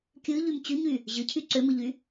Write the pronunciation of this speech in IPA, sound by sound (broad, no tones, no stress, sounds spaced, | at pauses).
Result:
kʲ ɯ ʎ y m t͡ɕ y ɲ y | ʑ ɯ cʰ y ǀ ø m ɯ ʎ y